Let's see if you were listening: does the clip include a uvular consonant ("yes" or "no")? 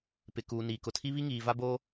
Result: no